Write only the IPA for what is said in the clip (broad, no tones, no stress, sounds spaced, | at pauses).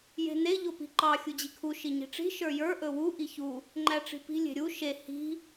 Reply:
j e̤ n e ʎ o p i̤ ǃ ɑ xʲ u d͡ʑ i kʰ u ʃ i ɲ i̤ ʈ͡ʂ i̤ ʃ ə˞ j ə˞ ʔ ɵ w u ʔ i ç u | ŋ͡ǃ æ ʈ͡ʂ i̤ p i̤ lʲ e̤ ɾʲ u ʃ e h i̤